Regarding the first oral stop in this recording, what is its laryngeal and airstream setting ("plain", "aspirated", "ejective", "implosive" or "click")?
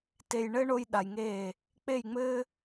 plain